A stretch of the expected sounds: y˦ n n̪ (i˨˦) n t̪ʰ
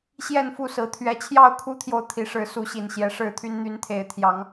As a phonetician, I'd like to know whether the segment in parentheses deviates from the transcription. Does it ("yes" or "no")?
yes